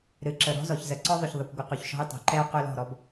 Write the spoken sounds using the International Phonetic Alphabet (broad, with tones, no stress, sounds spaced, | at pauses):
ɾ ɨ˨˦ ǁ ə˨ ɾ ɔ̤˦ z ɔ˨ ç z ə˨ ǀ ɔ˦ ðˤ ʏ˨ ç ðˤ ə˨ kʷ ɡʷ ə˨ q y˨ ç ʃ ɔ̤˦ j tˤ ɛ̤˨ ǃ ɛ˦ o̯ q ʏ˦ l ɔ̤˦˨ ɾ ɔ˦ b